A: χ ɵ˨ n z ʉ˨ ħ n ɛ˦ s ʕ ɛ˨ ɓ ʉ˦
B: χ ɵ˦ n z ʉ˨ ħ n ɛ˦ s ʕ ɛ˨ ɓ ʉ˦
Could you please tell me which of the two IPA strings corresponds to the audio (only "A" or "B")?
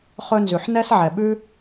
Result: B